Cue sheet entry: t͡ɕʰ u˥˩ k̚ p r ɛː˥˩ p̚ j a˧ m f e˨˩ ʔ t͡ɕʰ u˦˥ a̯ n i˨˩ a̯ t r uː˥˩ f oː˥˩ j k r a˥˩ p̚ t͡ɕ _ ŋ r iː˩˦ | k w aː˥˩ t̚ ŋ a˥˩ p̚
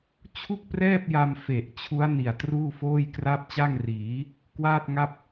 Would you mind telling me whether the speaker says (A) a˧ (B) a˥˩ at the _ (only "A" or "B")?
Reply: B